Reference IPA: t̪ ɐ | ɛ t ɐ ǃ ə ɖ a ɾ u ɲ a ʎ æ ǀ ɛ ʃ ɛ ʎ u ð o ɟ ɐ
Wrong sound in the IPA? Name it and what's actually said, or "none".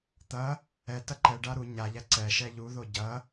ə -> ɛ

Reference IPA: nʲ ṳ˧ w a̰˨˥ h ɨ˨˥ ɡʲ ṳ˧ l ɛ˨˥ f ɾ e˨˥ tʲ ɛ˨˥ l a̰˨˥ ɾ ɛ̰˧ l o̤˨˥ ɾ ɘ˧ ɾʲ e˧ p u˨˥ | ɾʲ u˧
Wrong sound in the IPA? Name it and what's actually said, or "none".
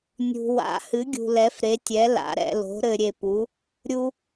none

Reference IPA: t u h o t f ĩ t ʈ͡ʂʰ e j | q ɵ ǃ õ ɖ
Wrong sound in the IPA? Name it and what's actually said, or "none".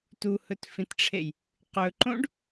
o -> ɵ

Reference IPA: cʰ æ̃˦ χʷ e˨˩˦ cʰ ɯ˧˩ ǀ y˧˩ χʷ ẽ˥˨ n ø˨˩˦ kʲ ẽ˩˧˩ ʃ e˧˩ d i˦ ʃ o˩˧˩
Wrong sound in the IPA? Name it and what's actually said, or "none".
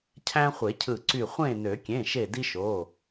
none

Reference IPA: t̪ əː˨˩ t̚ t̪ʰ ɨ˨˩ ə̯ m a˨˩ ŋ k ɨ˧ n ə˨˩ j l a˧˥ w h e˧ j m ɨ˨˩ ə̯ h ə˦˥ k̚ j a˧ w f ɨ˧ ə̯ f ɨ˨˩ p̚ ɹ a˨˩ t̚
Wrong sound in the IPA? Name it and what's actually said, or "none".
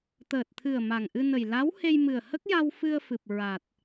k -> ʔ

